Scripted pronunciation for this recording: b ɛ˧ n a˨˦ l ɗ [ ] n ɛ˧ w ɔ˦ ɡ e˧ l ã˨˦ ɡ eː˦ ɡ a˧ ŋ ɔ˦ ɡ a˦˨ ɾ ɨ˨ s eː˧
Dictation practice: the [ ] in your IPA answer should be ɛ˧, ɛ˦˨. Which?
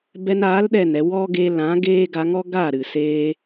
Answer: ɛ˦˨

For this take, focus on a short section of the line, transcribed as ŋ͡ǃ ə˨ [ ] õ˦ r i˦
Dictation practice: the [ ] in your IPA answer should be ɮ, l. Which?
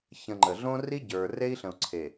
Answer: ɮ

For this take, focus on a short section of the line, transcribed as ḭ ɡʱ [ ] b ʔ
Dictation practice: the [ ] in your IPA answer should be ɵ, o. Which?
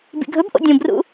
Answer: ɵ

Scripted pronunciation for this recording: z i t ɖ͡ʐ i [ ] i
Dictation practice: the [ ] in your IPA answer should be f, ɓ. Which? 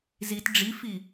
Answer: f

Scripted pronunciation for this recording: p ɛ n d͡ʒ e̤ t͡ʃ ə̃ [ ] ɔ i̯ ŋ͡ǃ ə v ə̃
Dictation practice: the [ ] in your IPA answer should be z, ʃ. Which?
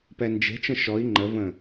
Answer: ʃ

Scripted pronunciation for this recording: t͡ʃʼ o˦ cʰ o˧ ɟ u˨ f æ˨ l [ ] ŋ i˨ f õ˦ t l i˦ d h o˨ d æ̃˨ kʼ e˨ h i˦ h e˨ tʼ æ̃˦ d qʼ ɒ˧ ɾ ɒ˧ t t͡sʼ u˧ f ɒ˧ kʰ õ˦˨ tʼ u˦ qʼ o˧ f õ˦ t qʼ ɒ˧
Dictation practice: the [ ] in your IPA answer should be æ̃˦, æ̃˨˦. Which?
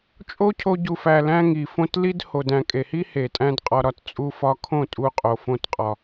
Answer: æ̃˦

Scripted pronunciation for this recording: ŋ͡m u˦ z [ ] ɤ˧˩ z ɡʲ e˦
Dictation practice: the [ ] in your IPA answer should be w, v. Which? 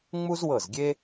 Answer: w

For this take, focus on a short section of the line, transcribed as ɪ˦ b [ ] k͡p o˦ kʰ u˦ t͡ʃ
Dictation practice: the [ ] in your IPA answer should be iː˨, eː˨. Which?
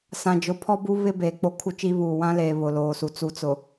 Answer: eː˨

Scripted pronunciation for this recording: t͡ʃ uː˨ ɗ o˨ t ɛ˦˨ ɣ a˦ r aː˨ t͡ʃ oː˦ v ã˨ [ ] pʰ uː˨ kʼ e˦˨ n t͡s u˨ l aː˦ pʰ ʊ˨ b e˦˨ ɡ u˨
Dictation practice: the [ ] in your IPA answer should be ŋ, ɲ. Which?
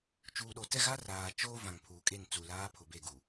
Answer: ŋ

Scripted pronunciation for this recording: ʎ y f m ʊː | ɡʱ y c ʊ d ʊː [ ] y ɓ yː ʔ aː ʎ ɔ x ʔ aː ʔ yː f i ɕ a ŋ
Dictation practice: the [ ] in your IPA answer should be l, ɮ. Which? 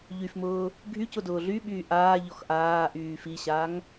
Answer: ɮ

